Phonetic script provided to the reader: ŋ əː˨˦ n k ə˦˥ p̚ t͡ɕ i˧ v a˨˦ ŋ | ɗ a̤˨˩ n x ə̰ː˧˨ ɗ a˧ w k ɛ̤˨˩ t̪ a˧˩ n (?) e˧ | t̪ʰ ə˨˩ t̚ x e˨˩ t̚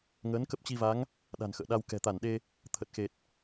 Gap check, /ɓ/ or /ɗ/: ɗ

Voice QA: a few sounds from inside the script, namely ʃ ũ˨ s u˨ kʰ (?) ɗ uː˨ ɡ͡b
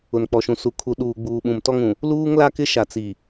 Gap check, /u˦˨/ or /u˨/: u˨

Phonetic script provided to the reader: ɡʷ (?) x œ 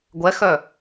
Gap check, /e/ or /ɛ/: ɛ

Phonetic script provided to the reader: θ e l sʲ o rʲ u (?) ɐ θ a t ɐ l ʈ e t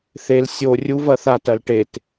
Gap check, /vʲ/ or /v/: v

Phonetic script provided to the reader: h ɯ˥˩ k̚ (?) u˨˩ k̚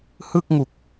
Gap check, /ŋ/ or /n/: ŋ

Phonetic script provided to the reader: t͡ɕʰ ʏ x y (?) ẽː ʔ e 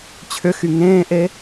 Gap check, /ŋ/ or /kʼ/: ŋ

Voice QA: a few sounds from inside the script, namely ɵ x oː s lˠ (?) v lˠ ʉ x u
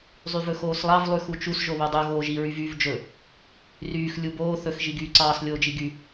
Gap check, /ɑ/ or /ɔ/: ɑ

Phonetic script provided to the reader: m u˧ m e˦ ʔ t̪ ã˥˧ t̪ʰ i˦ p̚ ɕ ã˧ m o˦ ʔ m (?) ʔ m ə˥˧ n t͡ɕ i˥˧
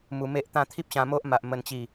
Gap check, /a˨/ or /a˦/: a˨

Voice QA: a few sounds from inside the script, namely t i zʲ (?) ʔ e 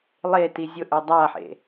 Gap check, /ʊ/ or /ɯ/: ʊ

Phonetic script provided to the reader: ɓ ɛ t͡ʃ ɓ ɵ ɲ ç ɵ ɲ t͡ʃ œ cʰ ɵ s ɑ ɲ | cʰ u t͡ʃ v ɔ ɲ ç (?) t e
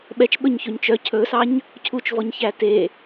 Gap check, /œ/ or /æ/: æ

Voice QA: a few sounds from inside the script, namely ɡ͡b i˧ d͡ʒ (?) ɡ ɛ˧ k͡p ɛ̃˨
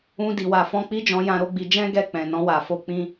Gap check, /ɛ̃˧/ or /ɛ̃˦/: ɛ̃˦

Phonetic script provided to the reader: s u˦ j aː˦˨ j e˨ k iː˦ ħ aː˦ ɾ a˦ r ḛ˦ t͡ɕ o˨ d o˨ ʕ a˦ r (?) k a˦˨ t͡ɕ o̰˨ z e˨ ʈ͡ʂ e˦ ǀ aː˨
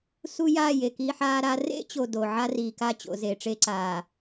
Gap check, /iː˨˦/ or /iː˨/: iː˨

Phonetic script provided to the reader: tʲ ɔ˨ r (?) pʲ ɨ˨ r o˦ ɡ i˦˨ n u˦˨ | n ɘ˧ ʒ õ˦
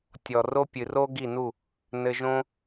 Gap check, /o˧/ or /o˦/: o˦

